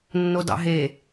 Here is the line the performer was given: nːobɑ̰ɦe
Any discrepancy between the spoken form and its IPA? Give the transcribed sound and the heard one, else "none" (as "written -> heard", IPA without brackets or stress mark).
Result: b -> d